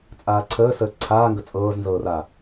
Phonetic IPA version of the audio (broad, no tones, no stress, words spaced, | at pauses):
t͡sʼaːǀʰəːsəː ǀʰaːŋɡə t͡sʼɤːznzɤːra